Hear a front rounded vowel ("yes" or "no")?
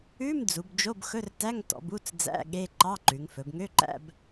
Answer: yes